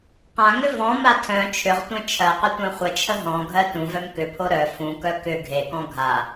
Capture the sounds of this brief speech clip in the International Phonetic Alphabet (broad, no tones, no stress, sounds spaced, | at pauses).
q ã ŋ ʏ v ɔ̃ m a tʰ œ̃ t͡ʃʰ ʏ ʁ tʷ œ̃ t͡ʃʰ ɜ q ʏ tʷ œ̃ χʷ ə t͡ʃʰ ə ɦ ɔ̃ ɡʱ ɜ t ũ v œ m k ʏ pʰ o ɾ œ f ũ k œ k ʏ ɡʱ e k ɔ̃ ɡʱ a